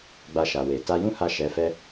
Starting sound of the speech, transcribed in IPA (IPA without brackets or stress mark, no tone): ɡ͡b